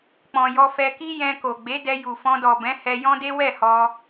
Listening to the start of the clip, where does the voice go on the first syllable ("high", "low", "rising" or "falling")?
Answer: low